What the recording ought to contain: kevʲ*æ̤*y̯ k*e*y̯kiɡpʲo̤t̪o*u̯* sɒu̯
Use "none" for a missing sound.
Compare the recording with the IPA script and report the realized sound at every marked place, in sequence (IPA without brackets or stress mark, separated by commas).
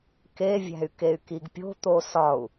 æ̤, e, none